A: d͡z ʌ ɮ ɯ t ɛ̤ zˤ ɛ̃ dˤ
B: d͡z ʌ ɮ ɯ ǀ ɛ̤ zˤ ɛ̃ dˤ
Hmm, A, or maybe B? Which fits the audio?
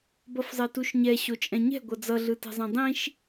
A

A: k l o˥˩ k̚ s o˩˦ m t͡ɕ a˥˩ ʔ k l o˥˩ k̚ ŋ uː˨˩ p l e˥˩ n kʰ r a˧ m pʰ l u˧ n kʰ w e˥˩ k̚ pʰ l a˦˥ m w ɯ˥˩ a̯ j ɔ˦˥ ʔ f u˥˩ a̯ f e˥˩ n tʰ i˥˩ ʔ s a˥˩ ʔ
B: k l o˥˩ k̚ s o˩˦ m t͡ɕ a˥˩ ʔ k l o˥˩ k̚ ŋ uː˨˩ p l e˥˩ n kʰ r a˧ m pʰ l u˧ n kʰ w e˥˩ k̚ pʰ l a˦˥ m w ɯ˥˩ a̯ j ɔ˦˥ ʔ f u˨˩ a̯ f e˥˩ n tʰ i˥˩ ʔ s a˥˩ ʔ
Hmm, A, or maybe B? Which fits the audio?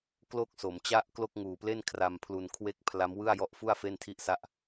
A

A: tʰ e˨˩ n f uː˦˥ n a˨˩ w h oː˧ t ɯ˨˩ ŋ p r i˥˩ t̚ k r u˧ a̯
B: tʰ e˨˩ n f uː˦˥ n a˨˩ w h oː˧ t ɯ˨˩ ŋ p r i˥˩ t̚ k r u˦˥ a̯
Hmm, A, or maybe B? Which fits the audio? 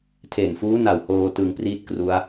B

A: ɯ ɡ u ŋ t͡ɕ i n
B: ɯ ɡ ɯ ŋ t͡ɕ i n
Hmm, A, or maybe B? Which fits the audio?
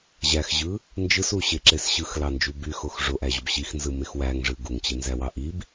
A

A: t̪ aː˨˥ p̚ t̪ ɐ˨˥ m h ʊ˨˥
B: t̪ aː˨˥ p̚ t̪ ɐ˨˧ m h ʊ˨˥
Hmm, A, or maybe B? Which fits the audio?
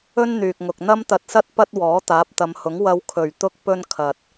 B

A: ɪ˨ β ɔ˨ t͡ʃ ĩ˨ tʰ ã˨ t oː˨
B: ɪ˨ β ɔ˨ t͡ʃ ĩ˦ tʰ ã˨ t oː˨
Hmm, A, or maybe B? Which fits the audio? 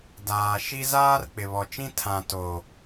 B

